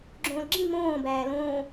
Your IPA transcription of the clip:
ɡ͡ǁ õː l ɡ͡ǁ ĩ m õː b æː l õː

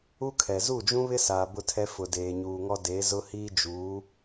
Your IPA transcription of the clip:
u˦ kʰ ɛ˨ z u˦˨ d͡ʒ ũ˦ β ɪ˦ s aː˨ b ʊ˦ tʰ ɛ˦ f ʊ˨ d eː˨ ɲ uː˨ ŋ ɔ˦ d e˨˦ z ʊ˦ h iː˦ d͡ʒ uː˨˦

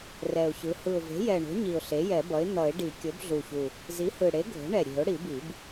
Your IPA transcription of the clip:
r ɛ˨˩ ʊ̯ ç ɯ˩˥ h ɯ˨˩ ʊ̯ v e̤˩˥ j ɛ˨˩ ɳ o̤˩˥ ɲ i˨˩ ʊ̯ ɬ e˩˥ j ɛ˨˩˦ b ʌ˩˥ ɪ̯ n̪ ʌ˨˩˦ ɪ̯ ɖ i˨˩˦ kʲ o˩˥ b ɮ u˨˩ ç u˨˩ | z i˩˥ h ɯ˨˩ ɽ e˩˥ ɡʱ o̤˩˥ ɳ ɛ˨˩ ɾʲ e̤˨˩˦ ʊ̯ ɽ i˨˩˦ b i˨˩˦ b

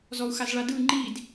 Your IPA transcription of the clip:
z ɔ u̯ x a z ɭ a d ɯ ŋ͡ǃ i d

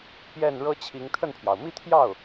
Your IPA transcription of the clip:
p j ɛ˥˩ n ɻ ɤ˥ t͡ɕʰ i˧˥ ŋ t̪ʰ ə˥˩ n pʰ j ɑ˩ ʊ̯ m i˥˧ t̪ʰ j ɑ˥˩ ʊ̯

